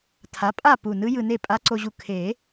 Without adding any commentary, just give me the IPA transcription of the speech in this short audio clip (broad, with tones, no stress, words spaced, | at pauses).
tʰa˩˥ pʼa˥˨pu˨˩nɯ˧˥ jɯ˧ne˥˨ pʼa˧˥ǀo˧ʑu˧ kʰe˨˩˦